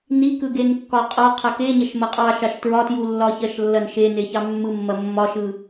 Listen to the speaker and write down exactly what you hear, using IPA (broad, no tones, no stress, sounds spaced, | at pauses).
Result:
n i k ɯ ɡ e n kː ɒ qʼ ɒ qʰ ɐ k e ɲ ɐ ʃ m ɐ qʼ ɑ ʃ ɑ ʃ t ɹ ɒ t j u lː ɒ ç ɐ ʃ lː ɐ n ʃ e n e ç ɑ mː ɯ mː ɐ mː ɒ ʃ ɯ